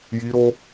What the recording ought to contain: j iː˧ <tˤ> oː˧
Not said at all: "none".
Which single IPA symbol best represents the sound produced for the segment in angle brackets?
ɾ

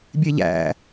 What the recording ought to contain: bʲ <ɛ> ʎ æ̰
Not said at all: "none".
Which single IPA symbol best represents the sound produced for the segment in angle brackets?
e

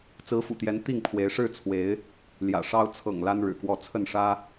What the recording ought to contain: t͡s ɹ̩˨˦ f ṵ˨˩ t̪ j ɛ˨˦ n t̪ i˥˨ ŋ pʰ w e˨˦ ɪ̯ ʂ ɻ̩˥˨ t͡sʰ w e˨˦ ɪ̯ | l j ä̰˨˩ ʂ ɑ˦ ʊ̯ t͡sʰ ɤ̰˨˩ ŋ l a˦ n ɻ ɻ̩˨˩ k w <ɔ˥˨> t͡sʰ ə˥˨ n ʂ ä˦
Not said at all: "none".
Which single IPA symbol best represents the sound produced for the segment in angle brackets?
ɔ˥˨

